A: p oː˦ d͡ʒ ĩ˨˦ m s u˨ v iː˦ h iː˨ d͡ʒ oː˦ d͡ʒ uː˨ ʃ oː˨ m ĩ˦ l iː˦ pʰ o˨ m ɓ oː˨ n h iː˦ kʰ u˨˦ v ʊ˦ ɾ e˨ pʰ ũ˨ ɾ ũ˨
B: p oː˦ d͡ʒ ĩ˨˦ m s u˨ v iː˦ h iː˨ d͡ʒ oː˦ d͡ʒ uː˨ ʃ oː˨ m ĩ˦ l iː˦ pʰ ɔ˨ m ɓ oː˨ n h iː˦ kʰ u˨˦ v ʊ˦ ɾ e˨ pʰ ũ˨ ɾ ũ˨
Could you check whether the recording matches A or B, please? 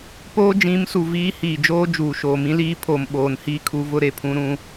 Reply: A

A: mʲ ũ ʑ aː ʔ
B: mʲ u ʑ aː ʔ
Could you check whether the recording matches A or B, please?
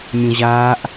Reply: A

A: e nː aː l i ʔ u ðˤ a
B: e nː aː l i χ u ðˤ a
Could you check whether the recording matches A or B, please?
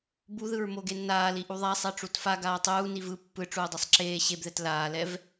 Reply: A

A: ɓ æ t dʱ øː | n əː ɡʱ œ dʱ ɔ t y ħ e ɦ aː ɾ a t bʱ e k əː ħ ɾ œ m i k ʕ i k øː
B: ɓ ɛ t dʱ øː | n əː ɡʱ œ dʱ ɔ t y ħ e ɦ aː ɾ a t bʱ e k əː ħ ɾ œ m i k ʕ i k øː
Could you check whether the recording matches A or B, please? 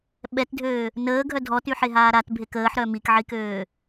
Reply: B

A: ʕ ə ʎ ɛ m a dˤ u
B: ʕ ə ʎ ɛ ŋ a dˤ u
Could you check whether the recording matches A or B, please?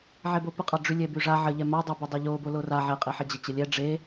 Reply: A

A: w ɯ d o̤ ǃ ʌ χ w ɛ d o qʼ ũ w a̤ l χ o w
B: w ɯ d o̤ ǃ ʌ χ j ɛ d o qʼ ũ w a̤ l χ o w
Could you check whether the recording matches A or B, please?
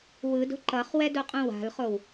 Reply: A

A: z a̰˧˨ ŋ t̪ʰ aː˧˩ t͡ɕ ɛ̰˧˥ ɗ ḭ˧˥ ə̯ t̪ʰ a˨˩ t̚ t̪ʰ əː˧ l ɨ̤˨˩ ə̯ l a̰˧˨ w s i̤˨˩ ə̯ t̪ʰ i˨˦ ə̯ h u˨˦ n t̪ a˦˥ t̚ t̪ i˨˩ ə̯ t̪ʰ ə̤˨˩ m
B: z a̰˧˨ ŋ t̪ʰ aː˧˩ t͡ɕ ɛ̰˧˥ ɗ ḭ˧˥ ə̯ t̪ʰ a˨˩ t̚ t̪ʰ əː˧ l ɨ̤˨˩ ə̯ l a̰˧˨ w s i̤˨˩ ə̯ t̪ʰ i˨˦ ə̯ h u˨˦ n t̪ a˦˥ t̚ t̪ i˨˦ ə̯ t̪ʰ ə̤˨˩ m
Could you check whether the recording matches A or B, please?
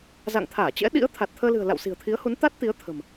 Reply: B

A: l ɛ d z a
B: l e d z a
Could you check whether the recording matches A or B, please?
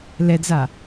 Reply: A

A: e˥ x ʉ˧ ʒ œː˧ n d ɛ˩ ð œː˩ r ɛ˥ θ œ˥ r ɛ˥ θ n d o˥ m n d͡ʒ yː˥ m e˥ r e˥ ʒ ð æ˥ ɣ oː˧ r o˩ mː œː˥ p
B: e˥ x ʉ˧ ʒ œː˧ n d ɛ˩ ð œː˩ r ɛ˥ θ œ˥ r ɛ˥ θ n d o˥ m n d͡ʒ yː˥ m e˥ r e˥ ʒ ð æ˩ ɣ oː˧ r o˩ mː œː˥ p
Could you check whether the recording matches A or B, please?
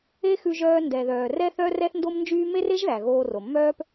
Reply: B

